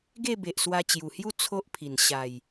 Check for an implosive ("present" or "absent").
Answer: absent